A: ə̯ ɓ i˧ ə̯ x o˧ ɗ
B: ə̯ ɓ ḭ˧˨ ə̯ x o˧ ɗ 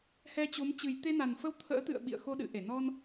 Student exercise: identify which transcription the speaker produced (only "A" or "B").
B